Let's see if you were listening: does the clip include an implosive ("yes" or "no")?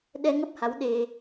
yes